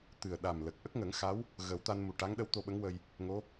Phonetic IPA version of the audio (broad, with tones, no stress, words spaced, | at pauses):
t̪ɨ˨˩ə̯ ɗa˨˩mlə˨˩k̚ ʔə˦˥k̚ŋə˨˩˦ŋxa˧˥w | ɣə˨˩˦w t̪a˧nmu˨˩ ʈa˧˥ŋɗə˧˥w t̪o˧ɓə˧˥ŋwə˧j | ŋo˧˥